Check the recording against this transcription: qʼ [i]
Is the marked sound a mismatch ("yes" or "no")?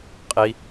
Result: no